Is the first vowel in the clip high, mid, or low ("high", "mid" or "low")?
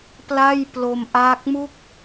low